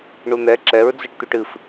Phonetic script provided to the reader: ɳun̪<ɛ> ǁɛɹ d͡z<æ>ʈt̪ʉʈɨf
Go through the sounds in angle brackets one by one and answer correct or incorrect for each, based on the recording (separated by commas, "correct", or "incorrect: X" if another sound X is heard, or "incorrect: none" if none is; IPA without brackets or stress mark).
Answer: correct, incorrect: ə